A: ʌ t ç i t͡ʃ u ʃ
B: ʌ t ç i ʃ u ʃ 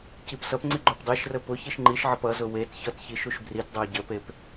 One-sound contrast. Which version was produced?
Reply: B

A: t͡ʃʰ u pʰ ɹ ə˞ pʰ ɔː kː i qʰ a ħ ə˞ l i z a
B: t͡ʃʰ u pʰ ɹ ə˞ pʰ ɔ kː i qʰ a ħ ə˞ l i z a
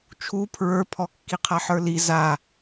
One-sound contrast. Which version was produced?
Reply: B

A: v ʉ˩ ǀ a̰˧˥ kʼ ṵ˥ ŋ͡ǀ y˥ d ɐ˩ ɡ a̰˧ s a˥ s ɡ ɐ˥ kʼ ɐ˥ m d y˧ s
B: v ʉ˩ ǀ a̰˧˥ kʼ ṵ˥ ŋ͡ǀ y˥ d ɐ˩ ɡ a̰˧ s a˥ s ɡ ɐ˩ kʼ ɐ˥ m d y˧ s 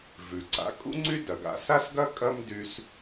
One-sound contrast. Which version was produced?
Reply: A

